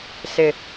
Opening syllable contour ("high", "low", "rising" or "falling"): low